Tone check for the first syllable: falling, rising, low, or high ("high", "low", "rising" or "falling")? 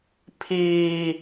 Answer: high